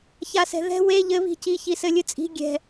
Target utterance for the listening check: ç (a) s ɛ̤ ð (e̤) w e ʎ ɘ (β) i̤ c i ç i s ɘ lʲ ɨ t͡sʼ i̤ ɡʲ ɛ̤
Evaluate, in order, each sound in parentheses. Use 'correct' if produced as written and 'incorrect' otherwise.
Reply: correct, incorrect, correct

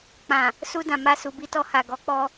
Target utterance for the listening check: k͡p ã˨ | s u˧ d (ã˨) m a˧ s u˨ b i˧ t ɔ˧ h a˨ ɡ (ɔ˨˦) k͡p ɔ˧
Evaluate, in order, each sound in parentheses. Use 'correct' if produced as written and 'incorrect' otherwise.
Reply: correct, correct

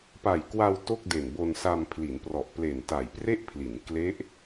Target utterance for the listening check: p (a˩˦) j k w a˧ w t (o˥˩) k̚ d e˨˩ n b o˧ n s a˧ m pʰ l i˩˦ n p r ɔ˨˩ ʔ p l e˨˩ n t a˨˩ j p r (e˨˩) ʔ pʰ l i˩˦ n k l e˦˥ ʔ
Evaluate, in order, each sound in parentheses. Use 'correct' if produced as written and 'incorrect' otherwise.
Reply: incorrect, correct, incorrect

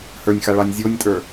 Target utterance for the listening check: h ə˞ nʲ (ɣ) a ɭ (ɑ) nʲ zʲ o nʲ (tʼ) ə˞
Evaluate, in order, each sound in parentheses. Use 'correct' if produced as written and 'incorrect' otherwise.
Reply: incorrect, correct, correct

